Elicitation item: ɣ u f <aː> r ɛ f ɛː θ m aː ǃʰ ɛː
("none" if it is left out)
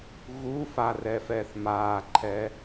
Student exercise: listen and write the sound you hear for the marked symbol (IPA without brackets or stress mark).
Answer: a